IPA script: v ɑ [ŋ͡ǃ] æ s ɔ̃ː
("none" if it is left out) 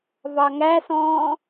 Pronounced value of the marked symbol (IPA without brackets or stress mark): ŋ